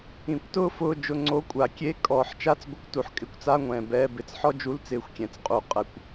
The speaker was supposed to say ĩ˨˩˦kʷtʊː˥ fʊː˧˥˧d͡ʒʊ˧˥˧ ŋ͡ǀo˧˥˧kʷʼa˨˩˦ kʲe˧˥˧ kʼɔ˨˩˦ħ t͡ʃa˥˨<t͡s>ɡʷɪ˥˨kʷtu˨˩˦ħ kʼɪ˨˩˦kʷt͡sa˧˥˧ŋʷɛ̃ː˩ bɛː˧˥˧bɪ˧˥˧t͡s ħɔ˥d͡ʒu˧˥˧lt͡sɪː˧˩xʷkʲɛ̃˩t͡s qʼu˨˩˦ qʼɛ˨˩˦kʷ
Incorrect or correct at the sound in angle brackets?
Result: correct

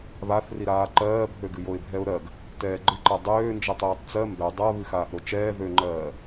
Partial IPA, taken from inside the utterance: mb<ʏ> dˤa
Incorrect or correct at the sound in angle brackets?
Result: incorrect: ɛ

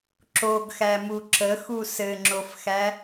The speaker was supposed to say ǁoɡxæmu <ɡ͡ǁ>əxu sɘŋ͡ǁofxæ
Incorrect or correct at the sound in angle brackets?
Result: incorrect: ǁ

